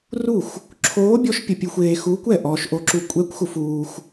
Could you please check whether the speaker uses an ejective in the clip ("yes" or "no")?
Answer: yes